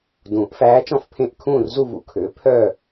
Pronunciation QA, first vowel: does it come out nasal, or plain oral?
nasal